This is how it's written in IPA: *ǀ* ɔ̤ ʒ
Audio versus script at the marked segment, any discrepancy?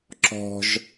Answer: yes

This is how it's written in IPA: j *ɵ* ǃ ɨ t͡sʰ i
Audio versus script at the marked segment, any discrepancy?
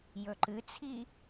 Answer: no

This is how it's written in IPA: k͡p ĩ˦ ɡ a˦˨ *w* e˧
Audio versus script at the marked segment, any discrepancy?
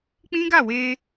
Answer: no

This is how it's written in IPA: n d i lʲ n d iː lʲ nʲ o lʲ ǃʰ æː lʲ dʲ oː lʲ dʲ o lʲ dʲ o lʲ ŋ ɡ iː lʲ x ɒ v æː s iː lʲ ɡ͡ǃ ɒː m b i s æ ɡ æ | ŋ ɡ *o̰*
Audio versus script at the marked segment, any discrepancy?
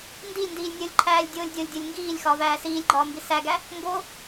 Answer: yes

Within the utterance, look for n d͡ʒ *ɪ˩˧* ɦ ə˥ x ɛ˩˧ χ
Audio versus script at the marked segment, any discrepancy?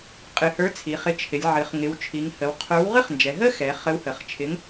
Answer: yes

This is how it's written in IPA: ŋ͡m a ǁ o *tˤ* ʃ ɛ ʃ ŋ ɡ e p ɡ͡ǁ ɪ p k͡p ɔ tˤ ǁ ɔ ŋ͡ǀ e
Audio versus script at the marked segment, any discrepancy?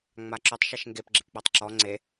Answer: no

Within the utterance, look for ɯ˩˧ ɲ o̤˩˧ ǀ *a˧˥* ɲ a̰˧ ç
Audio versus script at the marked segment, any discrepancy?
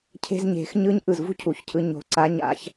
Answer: no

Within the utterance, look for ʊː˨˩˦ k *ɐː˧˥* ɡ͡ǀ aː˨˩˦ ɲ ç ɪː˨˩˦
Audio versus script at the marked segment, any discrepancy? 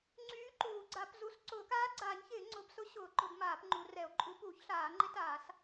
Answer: yes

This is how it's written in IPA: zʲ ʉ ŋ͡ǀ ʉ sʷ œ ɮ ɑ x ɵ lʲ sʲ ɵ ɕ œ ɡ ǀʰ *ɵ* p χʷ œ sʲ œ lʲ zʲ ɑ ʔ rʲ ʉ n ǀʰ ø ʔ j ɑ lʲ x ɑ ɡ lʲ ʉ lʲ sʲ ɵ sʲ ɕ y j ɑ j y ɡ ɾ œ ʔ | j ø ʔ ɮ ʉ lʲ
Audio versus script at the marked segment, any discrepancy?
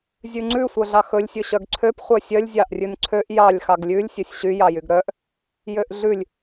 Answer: yes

